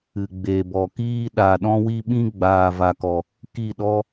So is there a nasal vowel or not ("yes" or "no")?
yes